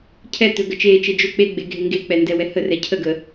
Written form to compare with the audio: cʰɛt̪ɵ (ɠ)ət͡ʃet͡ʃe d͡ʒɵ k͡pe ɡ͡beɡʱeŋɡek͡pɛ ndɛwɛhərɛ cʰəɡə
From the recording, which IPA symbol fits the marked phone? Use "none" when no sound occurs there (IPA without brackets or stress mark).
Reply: ɡ